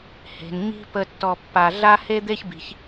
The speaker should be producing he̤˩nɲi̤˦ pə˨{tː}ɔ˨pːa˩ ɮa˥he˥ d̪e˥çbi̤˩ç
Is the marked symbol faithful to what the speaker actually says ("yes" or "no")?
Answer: yes